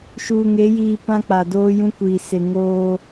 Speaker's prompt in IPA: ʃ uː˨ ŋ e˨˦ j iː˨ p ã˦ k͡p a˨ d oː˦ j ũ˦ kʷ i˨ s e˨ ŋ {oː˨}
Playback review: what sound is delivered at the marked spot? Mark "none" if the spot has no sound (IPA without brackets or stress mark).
oː˦